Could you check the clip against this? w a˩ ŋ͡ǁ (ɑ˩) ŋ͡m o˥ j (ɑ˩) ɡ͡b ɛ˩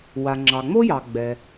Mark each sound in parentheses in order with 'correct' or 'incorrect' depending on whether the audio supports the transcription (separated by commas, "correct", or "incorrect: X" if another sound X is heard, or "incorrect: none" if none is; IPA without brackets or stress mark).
correct, correct